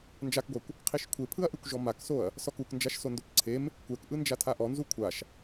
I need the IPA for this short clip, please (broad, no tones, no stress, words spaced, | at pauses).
nd͡ʒakɡʷakʷ | qʰiʃkʷʰepʰɯɐ̯ʔɯkʷ ʒɔmaksoɐ̯ | sɔkuk nd͡ʒaʃsondopǀʰem | kʷɛkʔɯnd͡ʒa tʰaʔɔnzu kʷʰaʃ